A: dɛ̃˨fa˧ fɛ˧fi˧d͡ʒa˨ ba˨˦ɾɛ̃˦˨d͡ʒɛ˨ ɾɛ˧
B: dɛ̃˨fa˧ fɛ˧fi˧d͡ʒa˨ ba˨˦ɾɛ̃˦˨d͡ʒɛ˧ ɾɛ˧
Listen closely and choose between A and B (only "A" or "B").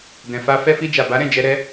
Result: B